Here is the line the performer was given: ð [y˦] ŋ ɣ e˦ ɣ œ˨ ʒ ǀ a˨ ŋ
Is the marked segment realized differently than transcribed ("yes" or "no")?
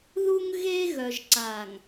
yes